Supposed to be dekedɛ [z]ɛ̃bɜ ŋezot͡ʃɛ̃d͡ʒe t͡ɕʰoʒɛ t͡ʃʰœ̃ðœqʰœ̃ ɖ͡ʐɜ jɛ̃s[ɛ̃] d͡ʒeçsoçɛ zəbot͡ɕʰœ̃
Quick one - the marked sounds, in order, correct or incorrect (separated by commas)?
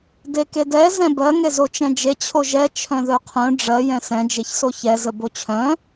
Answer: correct, correct